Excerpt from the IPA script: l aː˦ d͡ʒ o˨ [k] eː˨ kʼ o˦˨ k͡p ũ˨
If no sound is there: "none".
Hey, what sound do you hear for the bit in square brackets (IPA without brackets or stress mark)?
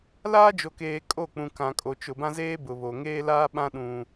k